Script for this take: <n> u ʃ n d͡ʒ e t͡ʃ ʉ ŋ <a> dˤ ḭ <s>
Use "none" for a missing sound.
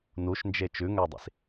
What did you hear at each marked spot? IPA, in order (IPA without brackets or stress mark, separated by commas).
n, æ, s